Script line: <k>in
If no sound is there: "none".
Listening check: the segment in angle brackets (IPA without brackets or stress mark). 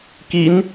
k